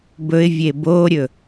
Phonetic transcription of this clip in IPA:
b ɵ ɪ̯ vʲ e b o ɾʲ ɵ

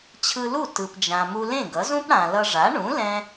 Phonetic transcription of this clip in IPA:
t͡ɕʰ ɯ˧ l u˥˩ t ɯ˩ p d͡ʒ ã˩ m u˧ l ẽ˥˩ ɡ ʌ˩˥ z ũ˥ p ɽ ã˩ l ʌ˧ ʐ a˩˥ ɳ ũ˩˥ l ɛ̃˧

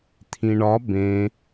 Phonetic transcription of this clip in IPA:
t̪ʰ ĩ ɳ ɒ b ẽ

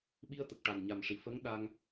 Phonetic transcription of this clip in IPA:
ɓ i˧ ə̯ t̪ ə˨˩ k̚ ʈ a˨˩ n ɲ a˨˩ m ʂ i˨˩˨ f ə˧˥ ŋ ɗ a˧ ŋ

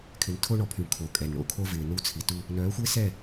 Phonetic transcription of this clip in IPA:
kʰ ɪ˨ n tʰ o˦ ɳ ɔ˨ pʰ y˨ ɳ kʰ o˨ kʼ ɛ˨ n ɳ o̰˨˦ kʰ o˦ v ɪː˨ n u˦ t͡sʰ i˨ t u˦ | n œː˨˦ xʷ ɪː˦ s ɛ˦˨

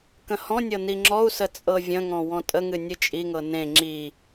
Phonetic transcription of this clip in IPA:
k ə̃ h ɔ̃ nʲ ɤ n i ŋ͡ǁ ɔ u̯ s ə t͡sʼ ɤ vʲ ə̃ ŋ ɔ̃ w ɔ̃ tʼ ə ŋ ɨ nʲ ɨ t͡ʃʼ i ŋ ɤ n ẽ ŋ͡ǁ i

